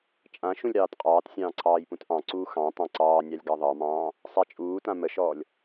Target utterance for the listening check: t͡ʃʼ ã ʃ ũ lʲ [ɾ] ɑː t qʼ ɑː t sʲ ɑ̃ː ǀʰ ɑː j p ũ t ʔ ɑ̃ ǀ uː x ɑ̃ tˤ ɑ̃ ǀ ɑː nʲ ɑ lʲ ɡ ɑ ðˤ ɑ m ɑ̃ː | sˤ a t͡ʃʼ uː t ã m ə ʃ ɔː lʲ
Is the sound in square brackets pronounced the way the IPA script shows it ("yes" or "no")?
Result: yes